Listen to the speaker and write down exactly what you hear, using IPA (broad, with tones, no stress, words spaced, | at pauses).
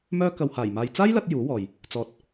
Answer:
mœː˧ kɐ˨whaː˨˩j maː˨jt͡saː˥jlɐ˧t̚ juː˨˥wɔː˨j | t͡sɔː˨t̚